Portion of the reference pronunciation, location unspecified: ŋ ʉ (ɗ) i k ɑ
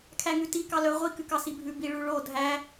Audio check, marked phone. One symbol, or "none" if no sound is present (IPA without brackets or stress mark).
t